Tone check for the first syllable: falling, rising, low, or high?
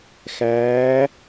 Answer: rising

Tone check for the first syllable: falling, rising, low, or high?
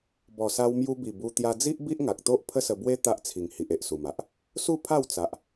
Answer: low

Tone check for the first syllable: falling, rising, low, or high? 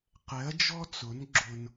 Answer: rising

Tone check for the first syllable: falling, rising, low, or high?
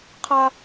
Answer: high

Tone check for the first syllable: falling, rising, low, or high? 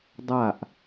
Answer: falling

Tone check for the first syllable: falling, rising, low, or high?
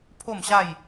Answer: falling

